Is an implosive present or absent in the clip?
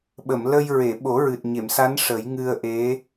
present